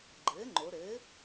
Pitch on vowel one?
rising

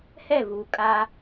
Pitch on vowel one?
falling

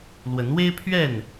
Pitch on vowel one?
rising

